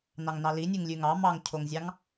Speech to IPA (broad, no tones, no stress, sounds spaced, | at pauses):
n ɑ ŋ n ɑ l i nʲ ʉ ŋ lʲ ʉ ŋ ɑ m ɑ ŋ cʰ o ŋ zʲ ɑ ŋ